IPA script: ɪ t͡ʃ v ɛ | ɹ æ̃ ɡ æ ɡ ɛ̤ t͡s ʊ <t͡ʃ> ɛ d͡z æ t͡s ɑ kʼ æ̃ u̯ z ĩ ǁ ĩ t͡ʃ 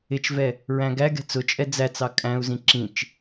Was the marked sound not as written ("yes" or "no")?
yes